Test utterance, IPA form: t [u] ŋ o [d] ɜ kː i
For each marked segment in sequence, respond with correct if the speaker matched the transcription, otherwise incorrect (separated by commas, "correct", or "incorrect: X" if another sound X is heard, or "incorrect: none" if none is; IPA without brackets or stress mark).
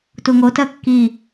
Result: correct, incorrect: t